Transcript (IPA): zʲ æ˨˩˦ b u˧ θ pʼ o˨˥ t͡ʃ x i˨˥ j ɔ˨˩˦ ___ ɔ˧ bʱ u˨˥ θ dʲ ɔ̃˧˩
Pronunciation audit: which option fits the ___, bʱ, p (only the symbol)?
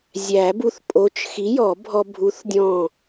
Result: bʱ